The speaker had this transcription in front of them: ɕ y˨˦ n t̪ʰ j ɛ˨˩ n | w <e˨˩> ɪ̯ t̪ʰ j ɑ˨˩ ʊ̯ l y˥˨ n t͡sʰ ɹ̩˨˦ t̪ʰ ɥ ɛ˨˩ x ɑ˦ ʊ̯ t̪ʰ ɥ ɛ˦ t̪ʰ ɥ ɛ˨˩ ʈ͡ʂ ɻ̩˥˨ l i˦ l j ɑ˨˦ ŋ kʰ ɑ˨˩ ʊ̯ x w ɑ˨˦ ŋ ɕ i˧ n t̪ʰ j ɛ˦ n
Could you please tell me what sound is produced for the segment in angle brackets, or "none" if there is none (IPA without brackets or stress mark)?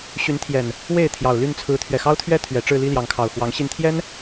e˥˨